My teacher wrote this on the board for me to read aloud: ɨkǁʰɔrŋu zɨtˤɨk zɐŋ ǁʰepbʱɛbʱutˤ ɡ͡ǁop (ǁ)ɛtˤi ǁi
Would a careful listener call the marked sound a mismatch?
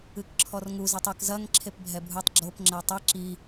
yes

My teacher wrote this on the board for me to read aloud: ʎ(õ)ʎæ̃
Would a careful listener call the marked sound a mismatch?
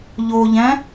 yes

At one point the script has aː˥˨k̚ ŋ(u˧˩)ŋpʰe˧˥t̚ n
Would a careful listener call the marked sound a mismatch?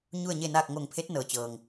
yes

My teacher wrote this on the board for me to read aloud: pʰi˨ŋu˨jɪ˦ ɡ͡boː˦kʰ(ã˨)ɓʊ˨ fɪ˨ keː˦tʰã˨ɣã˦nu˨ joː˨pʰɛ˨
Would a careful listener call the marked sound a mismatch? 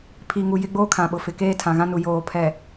no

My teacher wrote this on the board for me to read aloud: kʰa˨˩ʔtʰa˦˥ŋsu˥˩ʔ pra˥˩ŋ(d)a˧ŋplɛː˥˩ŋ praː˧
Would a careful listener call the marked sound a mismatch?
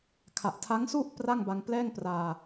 yes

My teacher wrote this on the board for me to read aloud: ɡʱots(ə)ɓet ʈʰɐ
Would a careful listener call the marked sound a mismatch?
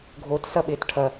yes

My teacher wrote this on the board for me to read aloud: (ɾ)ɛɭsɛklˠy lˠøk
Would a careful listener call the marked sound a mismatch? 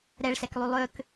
no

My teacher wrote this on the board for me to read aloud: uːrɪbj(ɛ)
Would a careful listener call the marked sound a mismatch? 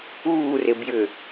yes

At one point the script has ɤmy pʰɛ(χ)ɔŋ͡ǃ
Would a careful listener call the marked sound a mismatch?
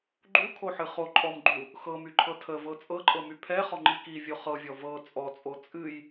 no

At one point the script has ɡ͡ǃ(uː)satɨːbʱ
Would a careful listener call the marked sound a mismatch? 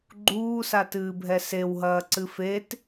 no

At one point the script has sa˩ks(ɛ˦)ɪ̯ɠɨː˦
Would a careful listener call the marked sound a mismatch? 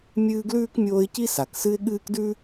yes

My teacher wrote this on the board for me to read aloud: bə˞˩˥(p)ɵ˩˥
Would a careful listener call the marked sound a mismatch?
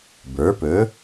no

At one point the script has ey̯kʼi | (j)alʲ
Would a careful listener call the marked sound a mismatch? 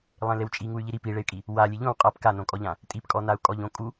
yes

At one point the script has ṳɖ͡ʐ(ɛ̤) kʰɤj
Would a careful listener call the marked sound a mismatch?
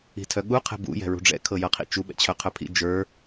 yes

